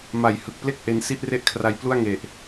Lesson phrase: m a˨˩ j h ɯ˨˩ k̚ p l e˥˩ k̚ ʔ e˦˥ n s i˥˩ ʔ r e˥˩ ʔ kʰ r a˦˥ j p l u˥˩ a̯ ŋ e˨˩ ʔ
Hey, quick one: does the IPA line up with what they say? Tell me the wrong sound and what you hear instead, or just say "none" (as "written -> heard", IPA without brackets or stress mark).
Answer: none